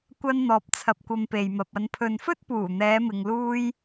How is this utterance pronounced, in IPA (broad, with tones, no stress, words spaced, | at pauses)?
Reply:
kʷɐ˧nn̪ɔː˨p̚t͡sʰɐ˨p̚ kʷɐ˨m pe˨jmɐ˨p̚ ɐ˨npʰɵ˨nfɵ˥t̚ puː˨˩n̪ɛː˨˧mɪ˨ŋluː˧j